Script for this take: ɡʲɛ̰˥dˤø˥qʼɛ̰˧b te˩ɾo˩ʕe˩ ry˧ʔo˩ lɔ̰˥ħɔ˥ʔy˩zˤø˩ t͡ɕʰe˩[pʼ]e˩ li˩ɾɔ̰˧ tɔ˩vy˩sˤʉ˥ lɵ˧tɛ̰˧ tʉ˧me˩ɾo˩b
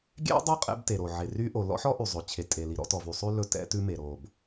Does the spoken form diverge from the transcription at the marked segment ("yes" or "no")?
yes